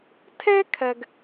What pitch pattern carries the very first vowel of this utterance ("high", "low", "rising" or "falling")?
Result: high